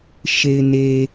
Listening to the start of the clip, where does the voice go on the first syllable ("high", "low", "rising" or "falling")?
low